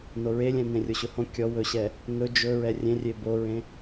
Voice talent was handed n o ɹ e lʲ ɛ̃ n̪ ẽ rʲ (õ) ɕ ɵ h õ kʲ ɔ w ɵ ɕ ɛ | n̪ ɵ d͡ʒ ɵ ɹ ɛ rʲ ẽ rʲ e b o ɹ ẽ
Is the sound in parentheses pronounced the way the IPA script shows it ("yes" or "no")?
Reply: no